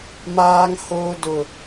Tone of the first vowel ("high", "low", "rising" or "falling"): low